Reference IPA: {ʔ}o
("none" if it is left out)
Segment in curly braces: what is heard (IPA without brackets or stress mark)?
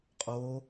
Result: qʼ